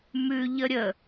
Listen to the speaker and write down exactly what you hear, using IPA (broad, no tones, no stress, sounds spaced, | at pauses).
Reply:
m ʉ ʎ ə ɾʲ ə